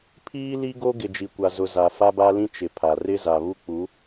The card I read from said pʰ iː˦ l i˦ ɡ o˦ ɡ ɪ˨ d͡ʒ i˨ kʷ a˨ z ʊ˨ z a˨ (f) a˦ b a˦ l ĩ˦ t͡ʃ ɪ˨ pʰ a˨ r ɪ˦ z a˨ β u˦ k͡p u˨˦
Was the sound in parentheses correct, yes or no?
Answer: yes